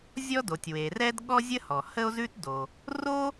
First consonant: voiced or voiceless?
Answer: voiced